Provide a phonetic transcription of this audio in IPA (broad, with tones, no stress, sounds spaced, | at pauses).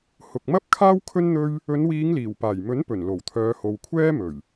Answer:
h ʊ˨ k̚ m ɐ˥ p̚ kʰ aː˥ w kʰ ɵ˥ n n̪ ɵ˥ ɥ | ɵ˨˧ n w iː˨˧ ŋ l iː˨˩ w p aː˨˩ j m ɵ˨˥ n p ɵ˨˩ n l o˨˩ w t̪ʰ œː˨˧ h o˨ w kʷʰ ɛː˥ m ɵ˨˩ ɥ